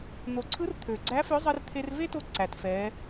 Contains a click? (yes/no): yes